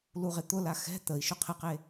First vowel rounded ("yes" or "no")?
yes